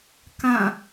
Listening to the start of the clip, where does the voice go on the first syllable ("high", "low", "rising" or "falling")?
falling